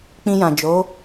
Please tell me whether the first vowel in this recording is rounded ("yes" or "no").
no